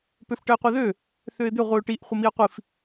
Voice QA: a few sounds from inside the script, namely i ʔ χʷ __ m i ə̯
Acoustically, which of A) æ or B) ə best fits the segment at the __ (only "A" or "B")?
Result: B